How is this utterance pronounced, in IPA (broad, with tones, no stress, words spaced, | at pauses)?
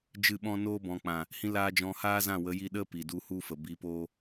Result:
d͡ʒɨ˦˨ɓɔ̃˦ noː˧bɔ̃˨k͡pã˨ | hĩ˧laː˧ d͡ʒɔ̃˧haː˦zã˦˨ wə˨˦ji˧ ɗə˦ pi˨du˧ hu˧fə˨ bi˨˦poː˦